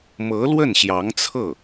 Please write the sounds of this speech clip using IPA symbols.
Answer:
m ɤ˧˥ l w ə˥˩ n ɕ j ɑ˧˥ ŋ t͡sʰ ɤ˥˩

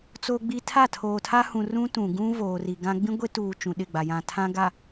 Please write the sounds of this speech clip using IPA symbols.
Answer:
t͡s o˨ ɡ͡b i˨ tʰ a˦˨ tʰ oː˨ tʰ a˦ h ũ˨ r ũ˦ t ũ˨ ɡ ũ˦ v oː˨ r i˨ ɡ ã˦ ɡ͡b ĩ˦ ɡʷ e˦ t uː˨ t͡ʃ ũ˨ ɗ ɪ˦˨ ɡ͡b a˨ j ã˨ tʰ ã˦ ɡ a˨

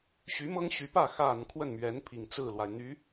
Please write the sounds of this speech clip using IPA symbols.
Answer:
ɕ y˧˥ m ɤ˥ ŋ ɕ y˧˥ p ä˥˩ x a˨˩ n kʰ w ə˥˩ n m ɥ ɛ˧˥ n pʰ i˨˩ ŋ t͡s ɹ̩˥˩ l w a˩ ɪ̯ n̪ y˧˥

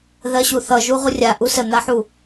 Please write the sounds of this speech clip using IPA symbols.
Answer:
ð ɜ ɕ u θ ʌ ʒ u ʁ u rʲ a ʔ u s ə n̪ a ħ u

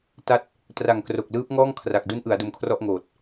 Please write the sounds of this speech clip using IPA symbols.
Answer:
t a˦˥ t̚ | t r a˨˩ ŋ k r o˨˩ k̚ l ɯː˦˥ p̚ ŋ ɔː˥˩ ŋ kʰ r a˨˩ k̚ d u˦˥ n ʔ ɯ˩˦ a̯ d o˧ m kʰ r ɔ˥˩ ʔ ŋ oː˨˩ t̚

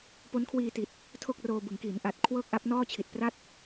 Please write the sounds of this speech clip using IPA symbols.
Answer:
p o˦˥ n kʰ w iː˧ t i˨˩ t̚ | tʰ o˥˩ k̚ r oː˧ b ɯ˩˦ ŋ k iː˩˦ n ʔ a˨˩ t̚ kʰ w ɤː˥˩ k̚ ʔ a˦˥ p̚ n ɔː˥˩ t͡ɕʰ i˨˩ t̚ p r a˥˩ t̚

